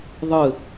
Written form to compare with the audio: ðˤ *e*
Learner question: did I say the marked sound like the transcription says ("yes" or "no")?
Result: no